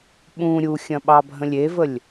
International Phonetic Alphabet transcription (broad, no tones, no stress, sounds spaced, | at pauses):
ɓ ũ ɾʲ u xʲ ɐ̃ ɓ ɑ bʱ ə̃ lʲ e v ə lʲ